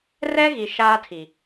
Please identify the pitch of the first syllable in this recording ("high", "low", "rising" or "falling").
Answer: high